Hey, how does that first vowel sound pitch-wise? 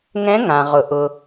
rising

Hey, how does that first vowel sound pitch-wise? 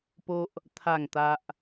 high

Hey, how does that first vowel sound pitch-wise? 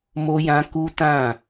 high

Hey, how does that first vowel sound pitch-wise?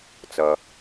low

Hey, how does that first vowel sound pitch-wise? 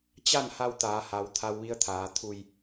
falling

